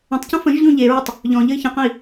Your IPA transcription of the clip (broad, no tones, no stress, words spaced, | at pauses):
ə̃tˤcə̃ fə̃ʒʎõ ʎeɹɪtˤ | ʎɔ̃ʎəi̯ çə̃qə̃i̯